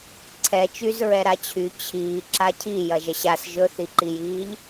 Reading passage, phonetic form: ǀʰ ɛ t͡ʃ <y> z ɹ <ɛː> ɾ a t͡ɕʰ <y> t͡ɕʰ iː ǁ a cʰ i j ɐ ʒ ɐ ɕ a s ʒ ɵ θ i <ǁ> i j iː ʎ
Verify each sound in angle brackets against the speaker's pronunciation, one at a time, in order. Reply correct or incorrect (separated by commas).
correct, incorrect, correct, incorrect